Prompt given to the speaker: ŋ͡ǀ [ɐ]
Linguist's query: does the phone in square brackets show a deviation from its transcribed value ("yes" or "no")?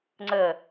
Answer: yes